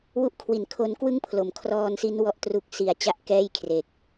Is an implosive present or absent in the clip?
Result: absent